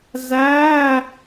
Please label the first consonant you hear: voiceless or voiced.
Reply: voiced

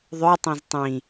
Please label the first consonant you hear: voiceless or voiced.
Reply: voiced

